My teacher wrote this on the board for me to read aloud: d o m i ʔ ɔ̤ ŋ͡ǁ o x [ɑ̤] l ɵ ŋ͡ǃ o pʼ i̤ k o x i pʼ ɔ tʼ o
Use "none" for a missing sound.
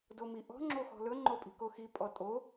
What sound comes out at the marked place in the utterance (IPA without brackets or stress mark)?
ɔ̤